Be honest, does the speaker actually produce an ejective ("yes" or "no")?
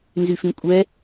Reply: yes